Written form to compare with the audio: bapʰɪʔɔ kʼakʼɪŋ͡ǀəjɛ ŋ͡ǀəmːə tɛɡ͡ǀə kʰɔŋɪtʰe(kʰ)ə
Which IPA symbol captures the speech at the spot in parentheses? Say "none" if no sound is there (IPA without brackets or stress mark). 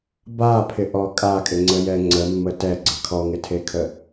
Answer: kʰ